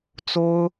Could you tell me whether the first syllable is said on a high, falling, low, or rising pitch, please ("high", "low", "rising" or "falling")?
high